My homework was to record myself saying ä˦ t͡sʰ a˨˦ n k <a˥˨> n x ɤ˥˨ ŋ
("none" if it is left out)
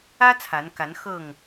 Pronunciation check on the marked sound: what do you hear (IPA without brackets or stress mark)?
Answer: a˨˦